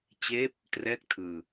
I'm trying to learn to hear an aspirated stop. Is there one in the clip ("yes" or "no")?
yes